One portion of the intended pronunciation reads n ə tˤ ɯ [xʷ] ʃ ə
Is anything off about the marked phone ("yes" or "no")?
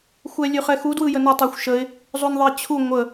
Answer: no